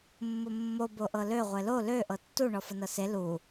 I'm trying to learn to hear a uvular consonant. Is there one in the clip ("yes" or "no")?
yes